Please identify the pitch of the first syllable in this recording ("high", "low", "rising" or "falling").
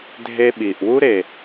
high